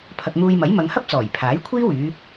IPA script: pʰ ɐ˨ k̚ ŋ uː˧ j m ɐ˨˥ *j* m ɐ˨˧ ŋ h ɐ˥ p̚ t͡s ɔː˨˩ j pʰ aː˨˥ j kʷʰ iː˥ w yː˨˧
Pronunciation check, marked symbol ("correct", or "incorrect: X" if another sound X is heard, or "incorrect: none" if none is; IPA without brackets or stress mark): correct